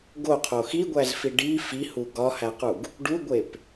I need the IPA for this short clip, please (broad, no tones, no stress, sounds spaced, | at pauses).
ɡ o qʰ o x i ɡʷ æ z f i ɖ i f i h u ɡ ɒ h æ q u ɡ | ɖ u ɡʷ e p